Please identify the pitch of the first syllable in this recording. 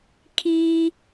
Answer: high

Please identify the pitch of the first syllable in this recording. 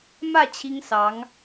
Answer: falling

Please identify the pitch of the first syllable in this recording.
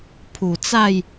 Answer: low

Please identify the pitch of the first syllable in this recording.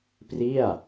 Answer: falling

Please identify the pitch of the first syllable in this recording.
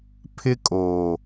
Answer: high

